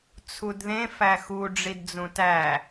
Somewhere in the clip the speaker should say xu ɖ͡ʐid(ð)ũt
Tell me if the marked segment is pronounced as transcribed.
no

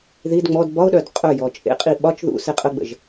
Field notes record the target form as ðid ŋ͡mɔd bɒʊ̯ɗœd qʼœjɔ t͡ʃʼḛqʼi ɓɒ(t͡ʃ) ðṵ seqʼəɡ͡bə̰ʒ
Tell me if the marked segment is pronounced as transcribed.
yes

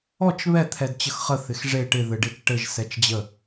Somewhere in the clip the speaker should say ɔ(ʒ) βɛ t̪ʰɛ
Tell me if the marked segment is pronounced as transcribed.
no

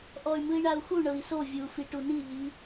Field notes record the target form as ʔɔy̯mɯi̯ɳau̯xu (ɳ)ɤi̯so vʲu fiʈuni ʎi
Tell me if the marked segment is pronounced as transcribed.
yes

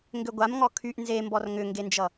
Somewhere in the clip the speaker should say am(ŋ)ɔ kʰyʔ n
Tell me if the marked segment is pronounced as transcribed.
yes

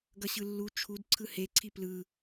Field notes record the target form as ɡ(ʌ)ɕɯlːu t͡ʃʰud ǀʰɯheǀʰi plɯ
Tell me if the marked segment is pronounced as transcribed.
yes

